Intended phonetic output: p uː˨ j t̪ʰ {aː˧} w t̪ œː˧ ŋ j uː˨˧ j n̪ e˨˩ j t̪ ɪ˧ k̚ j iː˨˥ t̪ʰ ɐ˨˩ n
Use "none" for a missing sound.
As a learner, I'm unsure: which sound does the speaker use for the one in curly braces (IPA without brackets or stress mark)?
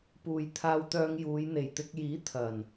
aː˧